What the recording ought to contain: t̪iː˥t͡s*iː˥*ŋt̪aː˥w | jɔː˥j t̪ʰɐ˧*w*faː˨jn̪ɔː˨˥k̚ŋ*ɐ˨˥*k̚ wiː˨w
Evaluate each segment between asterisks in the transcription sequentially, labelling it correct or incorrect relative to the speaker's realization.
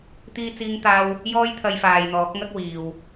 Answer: correct, incorrect: j, incorrect: ɐ˥

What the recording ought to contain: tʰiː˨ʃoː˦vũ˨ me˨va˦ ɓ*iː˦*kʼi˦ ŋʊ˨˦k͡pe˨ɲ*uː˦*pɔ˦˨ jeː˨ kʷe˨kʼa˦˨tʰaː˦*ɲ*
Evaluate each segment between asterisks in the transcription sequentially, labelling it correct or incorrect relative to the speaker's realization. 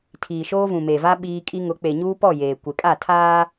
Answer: correct, correct, incorrect: none

